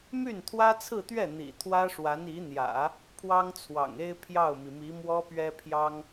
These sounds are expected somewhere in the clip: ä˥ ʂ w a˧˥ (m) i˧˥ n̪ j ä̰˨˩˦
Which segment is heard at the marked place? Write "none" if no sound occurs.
n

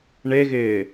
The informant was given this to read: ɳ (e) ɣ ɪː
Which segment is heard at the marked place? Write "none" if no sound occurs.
e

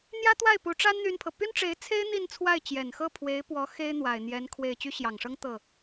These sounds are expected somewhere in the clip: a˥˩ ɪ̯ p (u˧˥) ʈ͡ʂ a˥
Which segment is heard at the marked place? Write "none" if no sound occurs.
u˧˥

